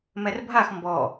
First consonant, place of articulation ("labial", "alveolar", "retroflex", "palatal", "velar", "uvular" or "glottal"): labial